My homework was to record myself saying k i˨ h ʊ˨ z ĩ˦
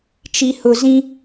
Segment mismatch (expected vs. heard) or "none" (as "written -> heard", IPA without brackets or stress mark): k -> t͡ʃ